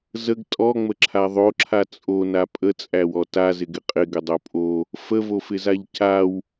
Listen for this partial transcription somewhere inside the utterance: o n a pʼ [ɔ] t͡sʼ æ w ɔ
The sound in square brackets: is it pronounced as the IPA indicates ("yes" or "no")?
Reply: no